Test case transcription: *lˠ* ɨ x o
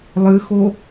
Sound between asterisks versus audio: correct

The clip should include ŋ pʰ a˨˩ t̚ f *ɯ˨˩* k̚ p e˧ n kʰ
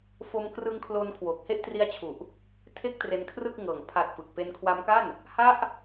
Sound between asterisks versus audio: correct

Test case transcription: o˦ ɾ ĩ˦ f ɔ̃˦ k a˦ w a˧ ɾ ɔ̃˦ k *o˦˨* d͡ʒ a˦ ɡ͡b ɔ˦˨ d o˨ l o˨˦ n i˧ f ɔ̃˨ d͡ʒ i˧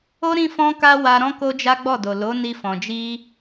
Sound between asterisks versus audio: incorrect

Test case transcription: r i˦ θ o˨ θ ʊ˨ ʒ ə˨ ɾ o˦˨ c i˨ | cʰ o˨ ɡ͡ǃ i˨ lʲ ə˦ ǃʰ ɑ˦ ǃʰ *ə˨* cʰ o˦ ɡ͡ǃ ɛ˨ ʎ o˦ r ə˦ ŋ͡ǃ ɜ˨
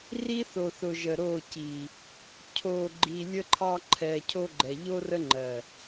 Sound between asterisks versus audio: incorrect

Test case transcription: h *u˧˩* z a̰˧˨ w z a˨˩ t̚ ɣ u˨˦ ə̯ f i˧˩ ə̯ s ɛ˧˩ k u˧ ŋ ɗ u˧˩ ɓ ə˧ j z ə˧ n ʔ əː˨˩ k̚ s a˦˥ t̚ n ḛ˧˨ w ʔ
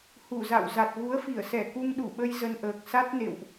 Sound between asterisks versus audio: correct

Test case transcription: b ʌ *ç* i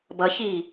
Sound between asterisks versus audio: correct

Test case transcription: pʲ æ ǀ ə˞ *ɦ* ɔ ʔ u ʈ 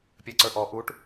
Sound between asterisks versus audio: incorrect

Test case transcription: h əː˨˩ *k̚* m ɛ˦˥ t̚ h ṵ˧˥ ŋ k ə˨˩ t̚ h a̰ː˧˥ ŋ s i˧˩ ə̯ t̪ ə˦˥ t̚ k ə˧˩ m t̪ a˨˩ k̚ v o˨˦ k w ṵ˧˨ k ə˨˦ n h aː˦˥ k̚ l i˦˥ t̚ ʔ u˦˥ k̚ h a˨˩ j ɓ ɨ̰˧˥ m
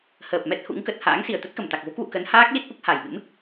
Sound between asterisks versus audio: incorrect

